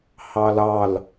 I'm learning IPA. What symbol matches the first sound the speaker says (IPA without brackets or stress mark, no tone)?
h